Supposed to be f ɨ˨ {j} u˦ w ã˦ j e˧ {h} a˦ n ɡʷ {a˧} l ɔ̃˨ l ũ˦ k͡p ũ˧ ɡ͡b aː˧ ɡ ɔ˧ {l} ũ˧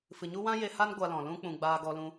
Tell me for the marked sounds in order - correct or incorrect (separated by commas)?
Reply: incorrect, correct, correct, correct